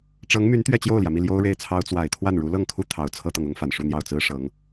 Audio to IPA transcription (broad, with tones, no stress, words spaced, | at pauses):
ʈ͡ʂɤ˧˥ŋmy˧˥n t̪ɥɛ˥˧t͡ɕjo˥˩ʊ̯ljä˩mi˥˩ ljo˥ʊ̯ɻe˥˩ɪ̯t͡sʰɑ˥ʊ̯ t͡swa˨˩ɪ̯t̪ʰwa˥˩n ɻu˧˥lɤ˥˩ŋkʰu˥ t̪ʰɑ˧˥ʊ̯t͡sʰɤ˥t̪ɤ˨ŋʊ˥ŋ fa˨˩nʂu˥˧n̪jɑ˥˩ʊ̯ t͡sɹ̩˥ʂɤ˧˥ŋ